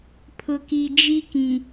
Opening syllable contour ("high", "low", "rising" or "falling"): low